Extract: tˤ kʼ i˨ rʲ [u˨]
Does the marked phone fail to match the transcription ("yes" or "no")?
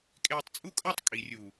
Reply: no